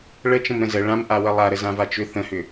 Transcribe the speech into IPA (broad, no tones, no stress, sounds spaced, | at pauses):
ɭ ə t͡ʃ ə̃ m ɾ ə̃ z ə ɭ ã m ʔ a w ə lˠ a ɾ ə z ã v a t͡ʃ ʏ θ ə̃ h ʏ